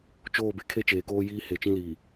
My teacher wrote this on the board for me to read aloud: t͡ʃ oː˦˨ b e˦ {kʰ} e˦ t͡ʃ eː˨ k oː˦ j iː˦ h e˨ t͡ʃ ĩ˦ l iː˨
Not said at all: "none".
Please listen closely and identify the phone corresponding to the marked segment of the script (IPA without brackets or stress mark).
kʰ